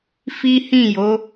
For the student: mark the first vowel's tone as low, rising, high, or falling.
high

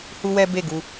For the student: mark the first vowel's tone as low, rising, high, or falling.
high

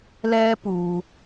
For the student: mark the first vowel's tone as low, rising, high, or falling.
high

